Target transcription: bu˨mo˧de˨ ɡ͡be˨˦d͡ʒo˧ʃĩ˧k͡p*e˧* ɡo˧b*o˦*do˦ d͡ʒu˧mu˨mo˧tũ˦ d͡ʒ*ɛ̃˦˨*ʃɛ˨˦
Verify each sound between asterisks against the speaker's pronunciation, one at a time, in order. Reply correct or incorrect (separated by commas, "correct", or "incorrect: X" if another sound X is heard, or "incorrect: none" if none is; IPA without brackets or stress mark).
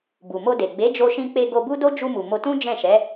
correct, incorrect: u˦, correct